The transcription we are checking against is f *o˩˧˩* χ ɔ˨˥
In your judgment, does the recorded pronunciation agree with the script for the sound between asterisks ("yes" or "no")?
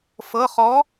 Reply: no